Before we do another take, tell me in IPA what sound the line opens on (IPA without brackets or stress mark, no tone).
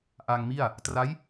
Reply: ʔ